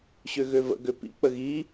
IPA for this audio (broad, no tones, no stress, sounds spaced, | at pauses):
ɕ ø ɣ ø v ə̰ ɡ ø p ḭ k͡p ə ɣ i